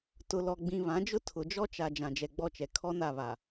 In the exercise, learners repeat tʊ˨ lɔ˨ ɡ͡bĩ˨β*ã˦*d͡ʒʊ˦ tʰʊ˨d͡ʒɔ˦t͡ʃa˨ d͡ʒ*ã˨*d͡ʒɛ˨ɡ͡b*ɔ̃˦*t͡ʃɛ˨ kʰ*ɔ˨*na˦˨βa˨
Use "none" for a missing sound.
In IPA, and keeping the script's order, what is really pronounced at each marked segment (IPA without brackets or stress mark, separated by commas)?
ã˨˦, ã˨, ɔ˦, ɔ˦